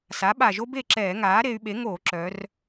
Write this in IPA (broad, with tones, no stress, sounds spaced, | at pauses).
s a˩˥ ɓ a˨˩ ʒ o˥ b e˥˩ ǁ ɛː˧˩˧ ŋ aː˩˥ ɾ e˩˧ y̯ ɓ e˩˥ ŋ oː˧˩˧ ǁ œː˩˧ r